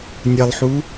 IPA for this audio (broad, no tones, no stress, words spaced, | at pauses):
nʲəlˠħu